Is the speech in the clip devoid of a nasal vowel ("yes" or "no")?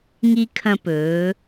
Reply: no